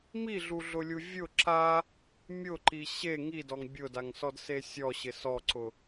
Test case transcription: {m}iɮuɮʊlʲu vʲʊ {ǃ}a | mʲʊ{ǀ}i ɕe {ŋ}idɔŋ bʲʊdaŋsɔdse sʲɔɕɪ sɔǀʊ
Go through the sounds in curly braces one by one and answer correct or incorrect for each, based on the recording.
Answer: correct, incorrect, incorrect, correct

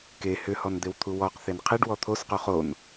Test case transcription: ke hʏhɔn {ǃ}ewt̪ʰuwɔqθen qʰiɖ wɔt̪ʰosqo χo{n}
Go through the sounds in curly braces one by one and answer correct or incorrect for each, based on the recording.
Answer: incorrect, correct

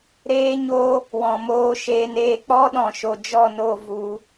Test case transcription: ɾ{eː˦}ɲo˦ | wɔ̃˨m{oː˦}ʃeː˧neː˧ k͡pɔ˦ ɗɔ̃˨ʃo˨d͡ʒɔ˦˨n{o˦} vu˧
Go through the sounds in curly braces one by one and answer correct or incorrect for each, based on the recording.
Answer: correct, incorrect, incorrect

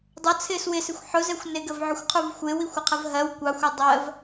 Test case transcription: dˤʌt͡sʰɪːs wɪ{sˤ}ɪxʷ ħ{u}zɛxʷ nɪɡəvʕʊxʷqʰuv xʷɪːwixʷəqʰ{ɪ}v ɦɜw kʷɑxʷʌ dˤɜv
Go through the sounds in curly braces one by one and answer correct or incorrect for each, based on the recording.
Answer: incorrect, incorrect, incorrect

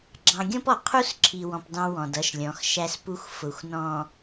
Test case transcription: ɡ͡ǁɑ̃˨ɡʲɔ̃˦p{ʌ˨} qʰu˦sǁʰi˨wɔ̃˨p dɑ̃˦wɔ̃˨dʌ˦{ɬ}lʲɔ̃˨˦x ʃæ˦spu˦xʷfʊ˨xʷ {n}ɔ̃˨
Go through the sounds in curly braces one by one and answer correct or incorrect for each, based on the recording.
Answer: incorrect, incorrect, correct

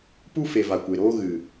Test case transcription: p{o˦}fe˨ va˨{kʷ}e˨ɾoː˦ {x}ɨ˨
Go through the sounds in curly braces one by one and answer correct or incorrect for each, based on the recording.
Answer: incorrect, correct, incorrect

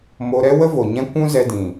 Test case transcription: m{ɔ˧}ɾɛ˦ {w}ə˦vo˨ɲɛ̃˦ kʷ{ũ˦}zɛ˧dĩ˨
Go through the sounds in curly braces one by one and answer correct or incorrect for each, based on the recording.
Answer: incorrect, correct, correct

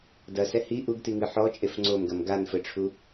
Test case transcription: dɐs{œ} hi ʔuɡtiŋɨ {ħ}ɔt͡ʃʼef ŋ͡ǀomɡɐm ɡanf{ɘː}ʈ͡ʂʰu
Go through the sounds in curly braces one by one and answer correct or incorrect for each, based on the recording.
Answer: incorrect, correct, incorrect

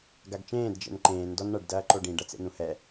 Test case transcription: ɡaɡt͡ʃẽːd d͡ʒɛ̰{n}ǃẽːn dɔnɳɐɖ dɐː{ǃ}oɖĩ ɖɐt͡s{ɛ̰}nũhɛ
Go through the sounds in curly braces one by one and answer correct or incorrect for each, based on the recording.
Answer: correct, correct, incorrect

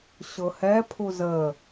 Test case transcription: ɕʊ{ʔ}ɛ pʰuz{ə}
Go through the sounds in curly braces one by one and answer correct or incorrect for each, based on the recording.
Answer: incorrect, correct

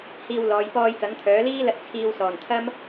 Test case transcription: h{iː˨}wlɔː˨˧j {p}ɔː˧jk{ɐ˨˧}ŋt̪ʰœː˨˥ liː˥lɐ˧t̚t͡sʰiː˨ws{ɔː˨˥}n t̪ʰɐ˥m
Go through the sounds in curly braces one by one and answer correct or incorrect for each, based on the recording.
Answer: incorrect, correct, incorrect, incorrect

